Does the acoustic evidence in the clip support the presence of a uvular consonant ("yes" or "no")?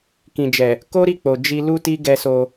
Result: no